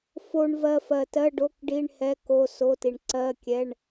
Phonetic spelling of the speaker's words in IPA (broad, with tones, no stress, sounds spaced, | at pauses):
f o˨ ɳ v ɜ˨ f ɜ˨ t ɜ˧˥˧ ɖ o˧˥˧ k ɖ i˧˥˧ ɳ h ɛ˧˥˧ k o˧˥˧ s o˧˥˧ t i˨ ɳ ǀ ɜ˧˥˧ kʲ ɛ˧˥˧ ɳ